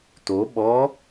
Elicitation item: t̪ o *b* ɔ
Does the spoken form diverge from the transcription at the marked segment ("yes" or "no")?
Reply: yes